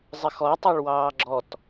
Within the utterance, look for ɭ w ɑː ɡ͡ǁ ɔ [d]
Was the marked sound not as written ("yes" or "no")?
yes